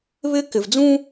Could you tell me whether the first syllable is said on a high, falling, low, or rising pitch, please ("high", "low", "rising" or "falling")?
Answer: high